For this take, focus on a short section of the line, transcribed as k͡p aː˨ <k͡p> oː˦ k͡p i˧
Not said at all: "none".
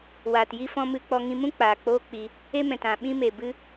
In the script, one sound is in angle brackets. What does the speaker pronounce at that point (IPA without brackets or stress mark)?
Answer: k͡p